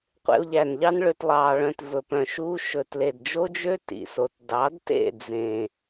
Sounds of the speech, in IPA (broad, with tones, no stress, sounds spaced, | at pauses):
qʷ ḛ˧ o̯ ʎ æ˨ n ʎ ɑ˦ n ɭ ø˧ t lˠ ɑː˨ ɭ œ̃˧ t v ɵ˨ p œ̃˨ ʃ uː˦ ʃ ɵ˨ t l e˨ d d͡ʒ o˦ d͡ʒ ø˦ t ḭ˨ s o˨ t d ɑ˨˦ d t ḛ˦˨ d͡z ẽ˨